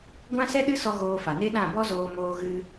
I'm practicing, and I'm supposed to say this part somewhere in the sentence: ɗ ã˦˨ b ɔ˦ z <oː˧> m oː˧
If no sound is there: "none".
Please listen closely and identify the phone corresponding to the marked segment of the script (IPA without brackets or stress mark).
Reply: oː˧